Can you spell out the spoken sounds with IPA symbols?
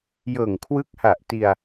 j ɤː˨˩ ŋ kʰ w ɯ˦˥ k̚ h a˨˩ ʔ t i˧ a̯

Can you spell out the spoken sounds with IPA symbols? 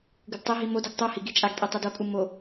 ɡ ɯ d tˤ e ɦ i m o d o ɡ tˤ u h i ɡ i t͡ʃʼ a ɡ tʼ i tˤ ɛ d o kʼ u m o

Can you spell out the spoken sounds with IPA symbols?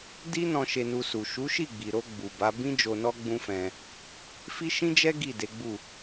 d i˦ n ɔ̃˧ ʃ e˧ n u˧ s u˨ ʃ u˨˦ ʃ i˦˨ ɡ͡b i˨ ɾ o˧ ɡ͡b u˨ b a˨˦ b ĩ˦ d͡ʒ o˧ n ɔ˦ ɡ͡b ũ˦ f ɛ̃˧ | f i˦ ʃ ĩ˦ d͡ʒ ɛ˦ ɡ i˦˨ d e˨˦ ɡ͡b u˦˨

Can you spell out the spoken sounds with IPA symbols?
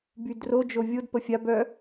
b y d r o d͡ʒ o vʲ o d p ə fʲ a b œ

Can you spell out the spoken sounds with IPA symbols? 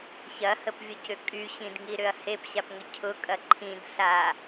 ç ɐ h ə p vʲ ʊ c ʏ kʼ y ɕ ĩ d ŋ i ɾ ʏ ɐ̯ h e p ɕ a p ŋ ə cʰ ʊ kʼ ɐ ǃʰ ĩ d ɬ a

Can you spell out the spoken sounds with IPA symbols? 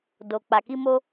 d o˨ k͡p a˨ k i˧ m o˧

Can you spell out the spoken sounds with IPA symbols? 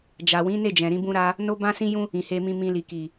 d͡ʒ a˨ w ĩ˨˦ n e˦˨ d͡ʒ ɛ̃˨ ɾ ĩ˧ b ũ˧ ɾ a˧ | n o˦ b ã˦ s ĩ˦ j ũ˦ | ĩ˨ h e˧ m ĩ˧ m ĩ˧ l i˨ k i˨

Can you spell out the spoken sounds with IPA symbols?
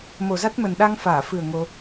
m o˨˩ z a˦˥ t̚ m ə˨˩ n ɗ a˧ ŋ f aː˧˩ f ɨ˨˩ ə̯ ŋ o˧

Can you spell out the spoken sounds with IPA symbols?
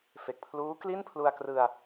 f e˨˩ k̚ pʰ l uː˦˥ k l i˥˩ n pʰ l u˧ a̯ k r ɯ˧ a̯

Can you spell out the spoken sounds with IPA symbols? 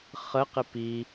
χ ə q ɪ p i

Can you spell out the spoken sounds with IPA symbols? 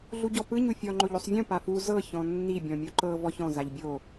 ɮ u ɟ ɔ p ɯ ɲ u fʲ ɔ ŋ͡ǃ o ʎ o sˤ vʲ ũ p a f u z ɤ ç ɔ̃ nː i bʲ ɔ̃ mʲ u ǃ ɤ v ɔ ç ɔ̃ z a ʎ bʲ o

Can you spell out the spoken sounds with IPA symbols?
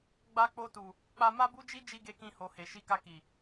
ɡ͡b a˧ k͡p o˧ t u˨ | k͡p a˧ m a˦ b u˦ d͡ʒ i˦ d͡ʒ i˦ ɡ e˧ k ĩ˧ h o˨ h e˨ ʃ i˧ k a˧ k i˨

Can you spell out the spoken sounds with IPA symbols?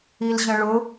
i l ʑ ə̃ ɭ ʊ

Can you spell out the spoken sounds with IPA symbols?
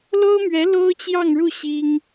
l o˥ ʊ̯ m ɥ ɛ˧˥ l o˥ ʊ̯ t͡ɕ j ɑ˥˧ ŋ ɻ u˥˩ ɕ i˥ ŋ

